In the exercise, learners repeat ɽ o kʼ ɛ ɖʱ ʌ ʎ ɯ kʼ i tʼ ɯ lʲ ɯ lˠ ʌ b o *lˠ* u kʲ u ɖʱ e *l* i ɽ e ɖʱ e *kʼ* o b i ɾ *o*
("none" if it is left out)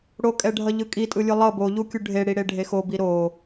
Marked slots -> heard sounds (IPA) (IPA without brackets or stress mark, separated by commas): ʎ, ɽ, x, o